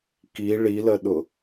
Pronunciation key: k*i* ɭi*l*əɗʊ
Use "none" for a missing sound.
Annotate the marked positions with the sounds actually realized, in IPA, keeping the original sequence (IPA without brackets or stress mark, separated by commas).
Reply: i, l